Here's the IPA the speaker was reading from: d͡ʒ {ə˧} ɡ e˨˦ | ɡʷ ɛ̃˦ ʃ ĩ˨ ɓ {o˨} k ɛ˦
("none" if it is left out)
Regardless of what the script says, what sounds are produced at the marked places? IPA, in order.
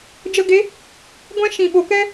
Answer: ə˧, o˨

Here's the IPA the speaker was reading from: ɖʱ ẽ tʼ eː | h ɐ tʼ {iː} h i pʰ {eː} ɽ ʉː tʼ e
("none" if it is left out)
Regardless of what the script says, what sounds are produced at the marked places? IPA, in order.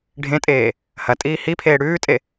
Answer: iː, eː

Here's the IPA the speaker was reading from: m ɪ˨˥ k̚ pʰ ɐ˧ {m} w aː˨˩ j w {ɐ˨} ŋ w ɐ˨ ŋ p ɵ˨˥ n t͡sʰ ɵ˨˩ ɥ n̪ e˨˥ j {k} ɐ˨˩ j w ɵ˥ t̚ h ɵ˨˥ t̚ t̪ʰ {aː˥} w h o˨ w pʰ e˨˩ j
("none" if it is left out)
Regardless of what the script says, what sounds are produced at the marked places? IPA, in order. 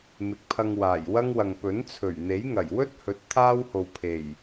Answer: ŋ, ɐ˥, ŋ, aː˥

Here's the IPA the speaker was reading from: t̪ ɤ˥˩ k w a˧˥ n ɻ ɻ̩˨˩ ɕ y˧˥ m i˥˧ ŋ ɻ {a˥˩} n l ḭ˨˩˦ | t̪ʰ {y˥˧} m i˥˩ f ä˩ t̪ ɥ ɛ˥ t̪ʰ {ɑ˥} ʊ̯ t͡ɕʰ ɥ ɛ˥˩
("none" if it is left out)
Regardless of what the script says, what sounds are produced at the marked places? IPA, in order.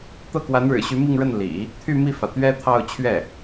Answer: ə˥˩, y˥˧, ɑ˥˧

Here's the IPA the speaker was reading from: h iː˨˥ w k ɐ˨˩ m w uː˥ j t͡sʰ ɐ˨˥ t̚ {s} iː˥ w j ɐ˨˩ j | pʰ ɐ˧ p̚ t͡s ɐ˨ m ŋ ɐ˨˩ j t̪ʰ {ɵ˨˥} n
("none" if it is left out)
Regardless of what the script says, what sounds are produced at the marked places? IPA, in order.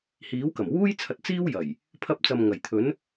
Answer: t͡s, ɵ˨˥

